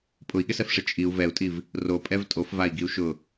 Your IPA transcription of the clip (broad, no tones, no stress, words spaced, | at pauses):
pʼʊi̯ɠɪsɛfʂɪ t͡ʃʼiu̯ vɛu̯tʼiv | ropʼɛv tʼofvai̯ɡiu̯ ʃʊ